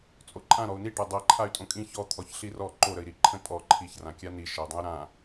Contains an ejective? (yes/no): yes